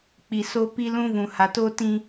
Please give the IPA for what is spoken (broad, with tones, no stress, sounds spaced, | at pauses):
k͡p i˨ s o˦ p i˦ l ũ˦ v ũ˨ h a˨ t oː˦ t ĩ˨